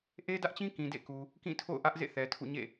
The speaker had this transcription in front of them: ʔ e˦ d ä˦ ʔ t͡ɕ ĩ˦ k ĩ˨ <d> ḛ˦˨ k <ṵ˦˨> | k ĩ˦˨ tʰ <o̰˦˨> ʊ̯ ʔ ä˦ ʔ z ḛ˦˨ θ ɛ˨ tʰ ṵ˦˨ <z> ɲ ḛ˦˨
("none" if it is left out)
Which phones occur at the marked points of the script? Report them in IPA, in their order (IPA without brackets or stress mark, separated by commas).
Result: d, u˨, o̰˦˨, none